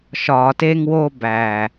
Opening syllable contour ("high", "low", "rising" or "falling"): low